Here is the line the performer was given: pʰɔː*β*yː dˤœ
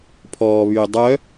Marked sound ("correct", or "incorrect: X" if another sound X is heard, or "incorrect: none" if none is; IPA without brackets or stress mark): correct